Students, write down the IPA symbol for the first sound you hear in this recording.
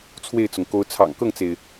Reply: t͡sʰ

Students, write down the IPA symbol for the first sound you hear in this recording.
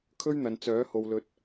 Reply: kʰ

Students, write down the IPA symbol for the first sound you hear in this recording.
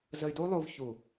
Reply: z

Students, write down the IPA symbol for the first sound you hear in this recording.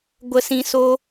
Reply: ɡʷ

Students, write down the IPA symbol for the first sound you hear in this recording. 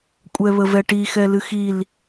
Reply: kʷʼ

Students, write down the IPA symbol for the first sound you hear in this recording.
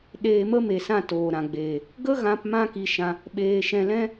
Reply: ɗ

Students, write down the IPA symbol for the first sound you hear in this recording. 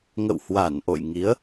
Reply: ŋ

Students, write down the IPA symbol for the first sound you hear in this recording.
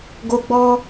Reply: ɡ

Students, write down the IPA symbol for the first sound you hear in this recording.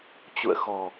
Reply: t͡ɕ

